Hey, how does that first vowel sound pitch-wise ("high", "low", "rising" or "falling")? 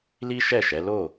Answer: high